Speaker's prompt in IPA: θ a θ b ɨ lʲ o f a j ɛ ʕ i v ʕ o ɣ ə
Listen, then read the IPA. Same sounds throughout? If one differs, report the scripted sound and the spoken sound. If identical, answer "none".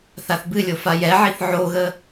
v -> θ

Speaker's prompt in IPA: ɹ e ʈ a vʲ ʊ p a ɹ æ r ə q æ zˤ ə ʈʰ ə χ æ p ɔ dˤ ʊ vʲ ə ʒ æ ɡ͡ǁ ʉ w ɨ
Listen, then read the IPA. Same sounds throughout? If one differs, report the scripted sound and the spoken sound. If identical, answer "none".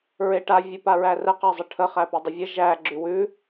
ɨ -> ʉ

